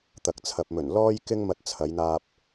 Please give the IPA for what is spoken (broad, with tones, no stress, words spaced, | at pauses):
t̪ɐ˨k̚t͡sʰɐ˨p̚mɵ˨˩n lɔː˥jkɪ˥ŋ mɐ˧t̚t͡sʰɐ˨˧jn̪aː˧p̚